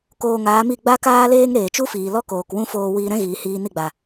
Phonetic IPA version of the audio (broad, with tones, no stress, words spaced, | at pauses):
koː˧ŋaː˨˦mi˦˨ ɡ͡ba˦kaː˦leː˦ŋ ɾeː˨t͡ʃu˦fiː˨lɔ˦ koː˨kwũ˦foː˧ wiː˧ɾɛ̃˦ɣiː˨ hiː˧ni˦˨ɡ͡ba˨